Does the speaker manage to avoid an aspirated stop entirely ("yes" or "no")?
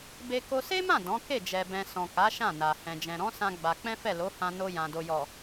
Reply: yes